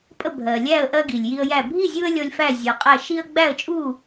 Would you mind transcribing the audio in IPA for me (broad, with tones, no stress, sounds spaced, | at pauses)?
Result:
pʼ ə˥˨ bʱ ɜ˨ lʲ æ˥˨ ə̯ ʔ ɜ˦ ɡ i˨ lʲ j i˦ ə̯ j æ˥˨ bʱ i˥˨ zʲ u˦ ə̯ lʲ ɔ˦ lʲ f æ˥˨ zʲ ɔ˨ qʼ æ˥˨ ʃ i˦ ə̯ ɡ͡b æ˥˨ ə̯ t͡ʃʼ u˥˨